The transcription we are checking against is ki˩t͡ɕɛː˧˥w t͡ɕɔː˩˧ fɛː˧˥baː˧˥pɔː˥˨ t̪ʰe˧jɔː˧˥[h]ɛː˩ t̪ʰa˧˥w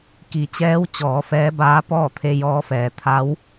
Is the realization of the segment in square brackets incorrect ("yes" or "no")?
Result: yes